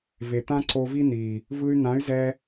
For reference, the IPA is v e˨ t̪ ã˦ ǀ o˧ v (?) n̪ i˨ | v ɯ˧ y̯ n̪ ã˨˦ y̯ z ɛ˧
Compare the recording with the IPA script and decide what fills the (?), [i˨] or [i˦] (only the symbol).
i˦